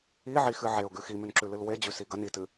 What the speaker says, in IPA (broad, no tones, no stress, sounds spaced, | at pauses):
i ʕ i x ɨ ʕ e ʊ̯ ɡ ʉ x i m ʉ n ǁ ʉ l ɨ l w e d͡ʑ ʉ s i ɡ ɐ n i t ɨ